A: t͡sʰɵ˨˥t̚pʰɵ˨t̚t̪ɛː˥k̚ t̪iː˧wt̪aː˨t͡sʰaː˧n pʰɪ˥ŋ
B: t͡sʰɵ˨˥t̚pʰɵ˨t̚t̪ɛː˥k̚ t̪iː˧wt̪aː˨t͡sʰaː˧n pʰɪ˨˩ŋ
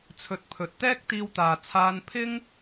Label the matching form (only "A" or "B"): A